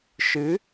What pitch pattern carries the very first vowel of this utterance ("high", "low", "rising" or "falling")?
rising